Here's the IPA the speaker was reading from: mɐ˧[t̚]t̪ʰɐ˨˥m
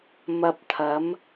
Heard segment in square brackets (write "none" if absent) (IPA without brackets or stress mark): p̚